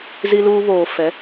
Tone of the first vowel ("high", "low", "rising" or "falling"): high